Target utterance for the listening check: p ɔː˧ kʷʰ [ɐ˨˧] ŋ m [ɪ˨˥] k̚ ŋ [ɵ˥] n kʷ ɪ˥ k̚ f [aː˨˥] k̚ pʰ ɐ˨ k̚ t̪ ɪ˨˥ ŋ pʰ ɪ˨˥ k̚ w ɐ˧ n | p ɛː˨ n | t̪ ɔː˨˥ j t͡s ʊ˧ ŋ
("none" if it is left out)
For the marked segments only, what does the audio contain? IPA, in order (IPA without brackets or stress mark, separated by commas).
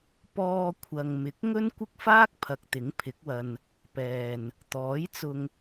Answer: ɐ˨, ɪ˨˥, ɵ˥, aː˥